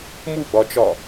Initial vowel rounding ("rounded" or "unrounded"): rounded